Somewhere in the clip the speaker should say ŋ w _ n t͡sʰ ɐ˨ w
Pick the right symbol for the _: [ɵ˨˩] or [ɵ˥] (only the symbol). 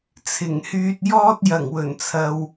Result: ɵ˨˩